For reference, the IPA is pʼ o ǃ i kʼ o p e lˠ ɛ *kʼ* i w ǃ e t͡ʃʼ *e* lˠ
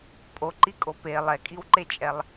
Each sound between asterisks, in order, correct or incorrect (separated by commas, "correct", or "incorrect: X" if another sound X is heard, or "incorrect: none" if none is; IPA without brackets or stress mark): correct, incorrect: ɛ